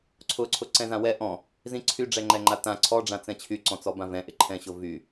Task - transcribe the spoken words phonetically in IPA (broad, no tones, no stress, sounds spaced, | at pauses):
ǀʰ ʊ ǀʰ ʊ ǀ ɛ̃ z ã w ɛ ʔ ɔ̃ | z ĩ ǀʰ y ɖ͡ʐ ɛ ŋ͡ǃ ɛ ŋ͡ǃ a t ã ǀʰ ɔ ɖ͡ʐ ã t͡s ɛ̃ t͡ɕʰ y ǀ ɔ̃ t͡s ɔ b ã v ɛ̃ ʔ ɪ ǃʰ ɛ̃ ɕ ʊ v y